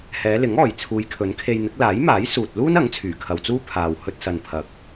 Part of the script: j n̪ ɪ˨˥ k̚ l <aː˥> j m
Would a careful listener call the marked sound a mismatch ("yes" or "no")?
yes